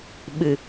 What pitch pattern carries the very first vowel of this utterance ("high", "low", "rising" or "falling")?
low